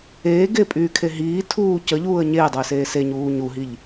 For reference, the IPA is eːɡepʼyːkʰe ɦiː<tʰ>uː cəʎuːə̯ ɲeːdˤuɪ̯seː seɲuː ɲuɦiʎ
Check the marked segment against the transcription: correct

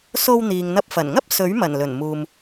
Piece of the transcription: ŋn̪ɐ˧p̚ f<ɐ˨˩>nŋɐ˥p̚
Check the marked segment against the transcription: correct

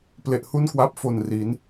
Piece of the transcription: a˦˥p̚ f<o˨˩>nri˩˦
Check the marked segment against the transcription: correct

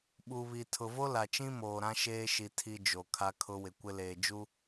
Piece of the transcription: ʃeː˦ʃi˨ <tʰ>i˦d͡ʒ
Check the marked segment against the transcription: correct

